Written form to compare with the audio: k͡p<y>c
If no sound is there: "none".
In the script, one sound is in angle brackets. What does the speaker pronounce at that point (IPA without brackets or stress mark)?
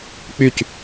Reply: y